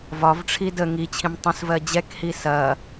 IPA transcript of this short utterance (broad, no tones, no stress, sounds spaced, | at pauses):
v ɒ v ʈ͡ʂʰ i d ə ŋ i t͡ɕʰ ĩ m tˤ ə̃ s v ɜ d͡ʑ ɛ k h i s ɐ